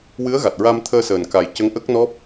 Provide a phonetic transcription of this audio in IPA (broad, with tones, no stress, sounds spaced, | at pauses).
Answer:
w ɨ˧˥ ə̯ ɣ a˨˩ t̚ ɹ a˧ m t̪ʰ əː˧ s əː˨˩ n k a˨˩ j c ə˧˥ ŋ ʔ ə˦˥ k̚ n ɔ˦˥ p̚